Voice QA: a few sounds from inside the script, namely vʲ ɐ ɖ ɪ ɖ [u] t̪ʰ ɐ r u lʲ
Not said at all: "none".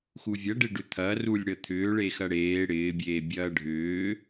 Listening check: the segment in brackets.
ʏ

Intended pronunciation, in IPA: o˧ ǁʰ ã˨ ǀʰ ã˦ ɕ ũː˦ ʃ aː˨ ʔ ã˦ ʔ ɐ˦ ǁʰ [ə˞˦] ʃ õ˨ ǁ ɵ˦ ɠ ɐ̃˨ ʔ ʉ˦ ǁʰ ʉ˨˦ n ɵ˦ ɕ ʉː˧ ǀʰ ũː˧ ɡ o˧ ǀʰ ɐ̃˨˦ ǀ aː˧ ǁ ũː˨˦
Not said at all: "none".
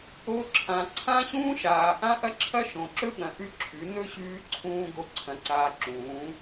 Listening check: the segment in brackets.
ɐ˦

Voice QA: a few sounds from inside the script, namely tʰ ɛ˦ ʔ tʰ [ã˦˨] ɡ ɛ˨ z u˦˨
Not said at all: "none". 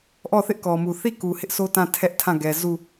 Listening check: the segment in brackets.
ã˦˨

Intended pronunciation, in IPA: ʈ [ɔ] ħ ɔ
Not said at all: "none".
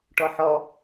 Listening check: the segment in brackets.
ɔ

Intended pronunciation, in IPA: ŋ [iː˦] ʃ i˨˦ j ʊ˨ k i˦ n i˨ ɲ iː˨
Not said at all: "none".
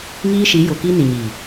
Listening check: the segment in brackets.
iː˦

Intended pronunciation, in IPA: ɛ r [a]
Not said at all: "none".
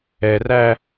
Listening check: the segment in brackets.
æ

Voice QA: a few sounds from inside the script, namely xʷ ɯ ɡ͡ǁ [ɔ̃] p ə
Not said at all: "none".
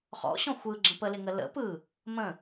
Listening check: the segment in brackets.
ə̃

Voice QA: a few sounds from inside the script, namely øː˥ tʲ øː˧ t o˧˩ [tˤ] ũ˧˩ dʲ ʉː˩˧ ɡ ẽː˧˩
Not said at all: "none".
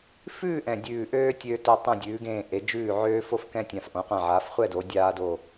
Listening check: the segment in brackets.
tˤ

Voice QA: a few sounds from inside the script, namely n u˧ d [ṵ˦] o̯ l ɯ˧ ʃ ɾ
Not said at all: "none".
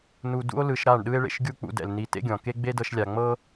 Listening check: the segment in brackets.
ṵ˦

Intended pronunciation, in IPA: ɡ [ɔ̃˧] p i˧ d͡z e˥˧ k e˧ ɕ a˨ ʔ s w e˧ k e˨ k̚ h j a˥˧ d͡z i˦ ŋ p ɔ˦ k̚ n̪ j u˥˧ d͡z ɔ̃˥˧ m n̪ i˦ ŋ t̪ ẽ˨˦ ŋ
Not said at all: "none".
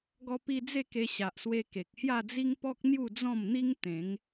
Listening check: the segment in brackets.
ɔ˧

